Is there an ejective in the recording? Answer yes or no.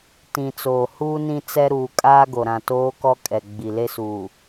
yes